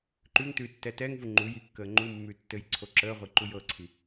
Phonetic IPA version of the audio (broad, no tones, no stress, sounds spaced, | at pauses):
ǃ ʉ ŋ t ʉː tː ɛ t ɛ ŋ v u ŋ͡ǃ u j i kː əː ŋ͡ǃ u mː ʉ tː ɘ j ǀʰ o ǁ əː ʁʷ i ǃ u j ɤ ǀʰ i